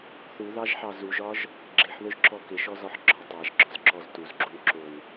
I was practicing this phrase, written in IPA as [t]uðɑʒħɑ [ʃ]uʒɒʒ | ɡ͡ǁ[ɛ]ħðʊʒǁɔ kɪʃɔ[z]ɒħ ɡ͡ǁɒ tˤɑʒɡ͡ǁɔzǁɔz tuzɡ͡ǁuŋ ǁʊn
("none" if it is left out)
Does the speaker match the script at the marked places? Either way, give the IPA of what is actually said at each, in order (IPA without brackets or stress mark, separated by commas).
θ, z, ɪ, z